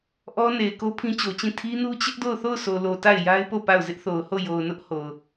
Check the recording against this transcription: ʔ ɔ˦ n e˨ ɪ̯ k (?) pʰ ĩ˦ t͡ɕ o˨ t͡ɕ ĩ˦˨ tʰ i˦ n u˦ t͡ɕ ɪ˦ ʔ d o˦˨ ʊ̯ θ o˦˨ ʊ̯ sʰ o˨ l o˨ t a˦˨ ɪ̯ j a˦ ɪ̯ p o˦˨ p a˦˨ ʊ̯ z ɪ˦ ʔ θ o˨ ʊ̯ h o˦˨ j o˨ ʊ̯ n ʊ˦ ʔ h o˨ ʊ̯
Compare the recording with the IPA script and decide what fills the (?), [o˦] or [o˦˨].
o˦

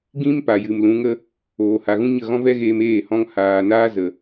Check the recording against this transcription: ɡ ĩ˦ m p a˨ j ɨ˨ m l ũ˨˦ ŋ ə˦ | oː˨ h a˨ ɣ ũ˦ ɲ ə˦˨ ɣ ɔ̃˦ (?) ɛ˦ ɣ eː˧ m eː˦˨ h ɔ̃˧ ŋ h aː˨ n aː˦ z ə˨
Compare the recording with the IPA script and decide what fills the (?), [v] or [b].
v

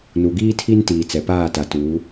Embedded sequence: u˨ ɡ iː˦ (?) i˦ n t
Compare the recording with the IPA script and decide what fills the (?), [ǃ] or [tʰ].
tʰ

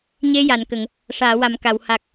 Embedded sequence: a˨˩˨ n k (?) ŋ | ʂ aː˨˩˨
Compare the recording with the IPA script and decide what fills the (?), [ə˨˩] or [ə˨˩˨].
ə˨˩˨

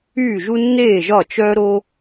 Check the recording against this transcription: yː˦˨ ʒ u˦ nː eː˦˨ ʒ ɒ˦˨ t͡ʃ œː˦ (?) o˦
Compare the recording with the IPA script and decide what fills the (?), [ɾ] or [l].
ɾ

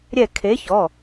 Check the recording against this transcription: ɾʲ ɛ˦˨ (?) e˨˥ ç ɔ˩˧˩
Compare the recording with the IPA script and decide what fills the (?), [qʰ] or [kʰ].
kʰ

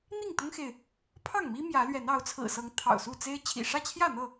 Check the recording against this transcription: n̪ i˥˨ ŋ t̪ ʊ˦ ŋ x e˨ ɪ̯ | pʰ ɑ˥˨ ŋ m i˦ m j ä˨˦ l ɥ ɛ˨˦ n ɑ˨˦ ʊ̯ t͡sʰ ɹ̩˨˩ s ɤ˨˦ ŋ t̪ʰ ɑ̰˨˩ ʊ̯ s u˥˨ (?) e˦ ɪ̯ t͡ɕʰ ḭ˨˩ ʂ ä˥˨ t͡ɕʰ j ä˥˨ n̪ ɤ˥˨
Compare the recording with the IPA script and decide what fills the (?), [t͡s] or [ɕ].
t͡s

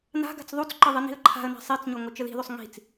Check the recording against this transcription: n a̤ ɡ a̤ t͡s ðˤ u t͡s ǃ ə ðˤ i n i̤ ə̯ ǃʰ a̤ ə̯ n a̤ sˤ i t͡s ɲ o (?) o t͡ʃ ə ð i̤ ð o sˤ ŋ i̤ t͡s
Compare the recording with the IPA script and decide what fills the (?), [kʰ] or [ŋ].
ŋ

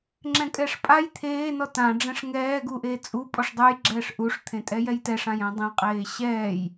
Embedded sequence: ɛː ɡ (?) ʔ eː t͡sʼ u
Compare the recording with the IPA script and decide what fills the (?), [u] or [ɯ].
u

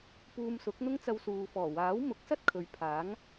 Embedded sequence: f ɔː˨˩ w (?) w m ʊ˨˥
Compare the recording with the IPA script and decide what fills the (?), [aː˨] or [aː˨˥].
aː˨˥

